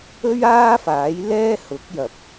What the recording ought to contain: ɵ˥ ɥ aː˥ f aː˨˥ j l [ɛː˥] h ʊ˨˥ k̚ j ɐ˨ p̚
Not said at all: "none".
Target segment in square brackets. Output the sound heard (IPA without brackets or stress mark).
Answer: ɛː˥